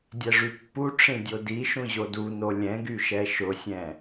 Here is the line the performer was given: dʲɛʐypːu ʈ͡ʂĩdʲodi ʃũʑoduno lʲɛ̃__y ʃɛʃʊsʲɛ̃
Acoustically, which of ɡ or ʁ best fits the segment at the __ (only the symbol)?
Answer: ɡ